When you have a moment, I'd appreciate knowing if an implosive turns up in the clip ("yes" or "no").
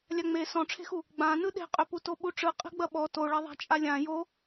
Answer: yes